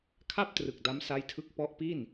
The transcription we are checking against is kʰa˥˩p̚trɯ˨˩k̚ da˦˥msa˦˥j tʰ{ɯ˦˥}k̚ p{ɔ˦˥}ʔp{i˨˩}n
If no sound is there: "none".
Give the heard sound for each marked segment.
ɯ˦˥, ɔ˦˥, i˥˩

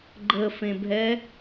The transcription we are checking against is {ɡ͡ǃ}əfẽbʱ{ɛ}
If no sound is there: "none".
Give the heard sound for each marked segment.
ɡ͡ǃ, ɛ

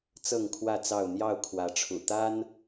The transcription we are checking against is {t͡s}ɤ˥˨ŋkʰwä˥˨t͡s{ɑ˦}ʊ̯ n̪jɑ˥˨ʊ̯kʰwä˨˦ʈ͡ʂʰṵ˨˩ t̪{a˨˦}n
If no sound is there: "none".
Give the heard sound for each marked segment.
t͡s, ɑ˥˨, a˦

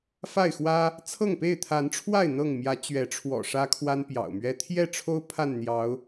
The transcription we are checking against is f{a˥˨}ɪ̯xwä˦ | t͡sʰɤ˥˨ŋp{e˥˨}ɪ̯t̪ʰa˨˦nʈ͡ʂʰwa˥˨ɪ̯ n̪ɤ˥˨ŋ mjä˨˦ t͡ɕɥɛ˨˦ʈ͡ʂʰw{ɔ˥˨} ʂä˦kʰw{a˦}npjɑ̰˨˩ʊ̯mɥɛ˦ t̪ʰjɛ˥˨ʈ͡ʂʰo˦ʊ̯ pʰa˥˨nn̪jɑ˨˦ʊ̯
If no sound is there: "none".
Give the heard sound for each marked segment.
a˥˨, e˥˨, ɔ̰˨˩, a˦

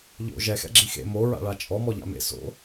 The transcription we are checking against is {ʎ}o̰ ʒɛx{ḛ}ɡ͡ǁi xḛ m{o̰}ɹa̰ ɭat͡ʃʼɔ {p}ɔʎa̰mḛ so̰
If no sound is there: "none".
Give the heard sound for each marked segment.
ʎ, ɛ̰, o, m

